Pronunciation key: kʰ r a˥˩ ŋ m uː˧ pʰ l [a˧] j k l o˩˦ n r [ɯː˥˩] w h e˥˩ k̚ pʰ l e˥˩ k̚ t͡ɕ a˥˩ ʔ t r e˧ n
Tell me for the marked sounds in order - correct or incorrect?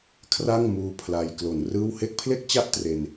correct, correct

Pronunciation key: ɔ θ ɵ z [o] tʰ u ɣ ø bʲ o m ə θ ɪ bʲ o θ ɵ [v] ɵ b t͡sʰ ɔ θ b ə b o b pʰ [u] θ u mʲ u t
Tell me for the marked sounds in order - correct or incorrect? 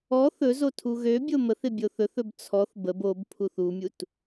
correct, incorrect: θ, correct

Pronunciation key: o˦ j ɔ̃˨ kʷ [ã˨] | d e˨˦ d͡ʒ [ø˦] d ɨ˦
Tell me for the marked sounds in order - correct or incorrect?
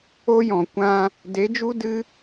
incorrect: ã˧, incorrect: u˦

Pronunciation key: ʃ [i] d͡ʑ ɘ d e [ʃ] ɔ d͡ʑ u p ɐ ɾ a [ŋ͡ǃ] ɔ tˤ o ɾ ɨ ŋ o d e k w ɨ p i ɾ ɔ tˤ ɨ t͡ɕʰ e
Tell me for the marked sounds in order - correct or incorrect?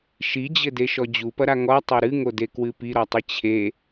correct, correct, incorrect: ŋ

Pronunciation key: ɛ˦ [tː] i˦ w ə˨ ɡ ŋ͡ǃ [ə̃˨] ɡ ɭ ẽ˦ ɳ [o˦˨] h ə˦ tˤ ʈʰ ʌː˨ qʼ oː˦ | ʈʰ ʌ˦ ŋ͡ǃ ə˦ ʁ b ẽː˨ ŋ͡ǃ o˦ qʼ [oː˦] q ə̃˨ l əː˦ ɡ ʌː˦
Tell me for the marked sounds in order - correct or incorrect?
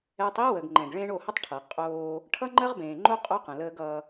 incorrect: tˤ, incorrect: ɛ̃˨, correct, incorrect: o˦

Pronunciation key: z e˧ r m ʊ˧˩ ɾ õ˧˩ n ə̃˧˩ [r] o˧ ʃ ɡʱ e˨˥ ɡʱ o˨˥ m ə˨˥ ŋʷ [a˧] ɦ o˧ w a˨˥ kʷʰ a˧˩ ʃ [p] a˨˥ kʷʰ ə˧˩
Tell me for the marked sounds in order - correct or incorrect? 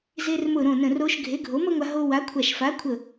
correct, correct, incorrect: f

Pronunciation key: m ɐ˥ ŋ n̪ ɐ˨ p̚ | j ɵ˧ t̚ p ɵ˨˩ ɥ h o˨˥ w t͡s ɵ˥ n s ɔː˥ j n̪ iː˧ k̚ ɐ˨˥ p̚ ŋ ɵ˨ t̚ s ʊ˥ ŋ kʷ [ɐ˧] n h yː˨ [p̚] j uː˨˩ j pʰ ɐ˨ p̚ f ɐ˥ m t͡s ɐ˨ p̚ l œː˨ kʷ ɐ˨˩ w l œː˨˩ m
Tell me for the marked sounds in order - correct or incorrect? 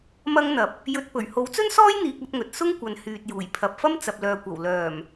incorrect: ɐ˨, incorrect: t̚

